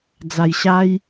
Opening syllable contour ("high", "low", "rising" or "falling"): low